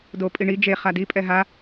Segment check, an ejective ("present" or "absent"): present